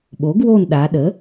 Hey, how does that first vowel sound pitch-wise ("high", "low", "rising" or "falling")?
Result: rising